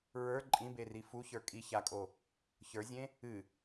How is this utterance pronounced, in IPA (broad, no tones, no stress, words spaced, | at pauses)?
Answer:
ɹə˞ ǃʼĩberi fu çə˞kʼi çakʼo | çə˞zʲẽ | ɨ